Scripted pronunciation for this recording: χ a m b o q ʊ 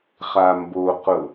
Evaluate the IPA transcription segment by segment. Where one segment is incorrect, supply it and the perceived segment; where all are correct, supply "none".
none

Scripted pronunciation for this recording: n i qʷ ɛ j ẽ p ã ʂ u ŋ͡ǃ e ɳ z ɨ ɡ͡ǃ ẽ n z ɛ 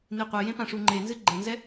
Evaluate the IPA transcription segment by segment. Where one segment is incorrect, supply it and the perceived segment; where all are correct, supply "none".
ɳ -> n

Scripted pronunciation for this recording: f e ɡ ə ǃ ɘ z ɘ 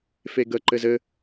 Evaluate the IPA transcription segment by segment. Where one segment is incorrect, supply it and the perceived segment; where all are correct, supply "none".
none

